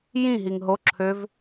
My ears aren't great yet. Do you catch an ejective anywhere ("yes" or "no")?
no